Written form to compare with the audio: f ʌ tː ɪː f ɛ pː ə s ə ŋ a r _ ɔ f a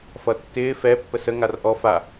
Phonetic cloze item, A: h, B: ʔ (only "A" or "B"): B